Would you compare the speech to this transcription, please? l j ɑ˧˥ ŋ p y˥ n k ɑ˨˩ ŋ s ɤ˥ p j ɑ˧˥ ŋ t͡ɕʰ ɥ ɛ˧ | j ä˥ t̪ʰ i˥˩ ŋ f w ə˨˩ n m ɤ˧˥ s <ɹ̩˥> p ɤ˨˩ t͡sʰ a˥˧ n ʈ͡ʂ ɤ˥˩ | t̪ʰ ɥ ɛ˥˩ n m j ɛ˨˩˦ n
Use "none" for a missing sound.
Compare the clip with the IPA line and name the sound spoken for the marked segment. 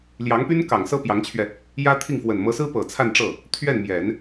ɹ̩˥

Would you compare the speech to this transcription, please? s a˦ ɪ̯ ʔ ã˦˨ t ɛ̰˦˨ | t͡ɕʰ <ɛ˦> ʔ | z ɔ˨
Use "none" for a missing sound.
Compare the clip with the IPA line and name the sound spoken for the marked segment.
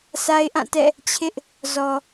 ɪ˦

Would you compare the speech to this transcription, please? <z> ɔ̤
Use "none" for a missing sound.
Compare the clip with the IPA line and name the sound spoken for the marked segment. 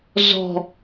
z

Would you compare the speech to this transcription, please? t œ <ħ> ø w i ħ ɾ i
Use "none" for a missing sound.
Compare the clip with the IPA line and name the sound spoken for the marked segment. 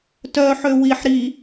ħ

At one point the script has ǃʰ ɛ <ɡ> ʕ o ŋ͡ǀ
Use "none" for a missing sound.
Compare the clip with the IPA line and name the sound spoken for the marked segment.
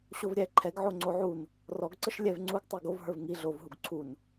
ɡ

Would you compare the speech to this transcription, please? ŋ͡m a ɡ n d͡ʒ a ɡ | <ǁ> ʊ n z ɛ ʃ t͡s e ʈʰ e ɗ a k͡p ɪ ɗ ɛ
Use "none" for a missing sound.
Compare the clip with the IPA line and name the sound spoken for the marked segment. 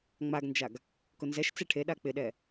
k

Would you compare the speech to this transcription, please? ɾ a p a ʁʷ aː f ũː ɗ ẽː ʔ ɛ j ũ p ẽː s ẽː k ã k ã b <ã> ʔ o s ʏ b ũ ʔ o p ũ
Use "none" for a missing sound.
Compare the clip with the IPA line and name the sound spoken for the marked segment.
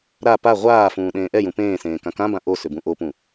ã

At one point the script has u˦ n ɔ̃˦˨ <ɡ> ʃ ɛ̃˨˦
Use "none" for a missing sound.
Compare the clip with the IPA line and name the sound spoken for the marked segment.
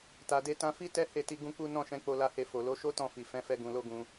none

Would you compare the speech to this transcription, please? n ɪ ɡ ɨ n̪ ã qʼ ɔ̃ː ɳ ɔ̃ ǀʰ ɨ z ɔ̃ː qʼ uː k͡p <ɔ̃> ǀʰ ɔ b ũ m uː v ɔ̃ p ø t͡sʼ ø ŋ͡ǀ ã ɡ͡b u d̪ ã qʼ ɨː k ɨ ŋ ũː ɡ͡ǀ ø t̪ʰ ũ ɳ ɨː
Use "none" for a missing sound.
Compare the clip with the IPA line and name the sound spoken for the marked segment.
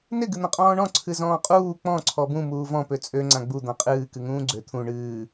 ɔ̃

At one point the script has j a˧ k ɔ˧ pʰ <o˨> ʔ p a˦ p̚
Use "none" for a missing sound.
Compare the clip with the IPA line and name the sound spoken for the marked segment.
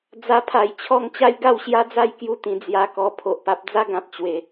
o˨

